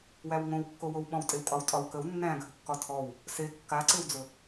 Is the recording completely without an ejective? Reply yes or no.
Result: no